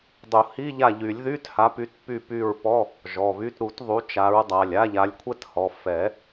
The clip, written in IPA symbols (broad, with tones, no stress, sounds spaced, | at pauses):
dˤ u˨˩˦ h i˧˥˧ ʎ a˦˨ ʎ y˨˩˦ lʲ ð y˧˥˧ t h a˨˦ p y˨˦ t p y˦˨ p y˦˨ ɹ p ɔ˧˥˧ | ʒ ɔ˩˧˩ β y˧˥˧ t ɾ u˨˩˦ t ðˤ u˨˦ t͡ʃ a˨˦ ɹ dˤ a˩˧˩ lʲ a˧˥˧ ʎ a˨˦ lʲ kʷʰ ɛ˥ t h ɔ˩˧˩ f ɛ˨˩˦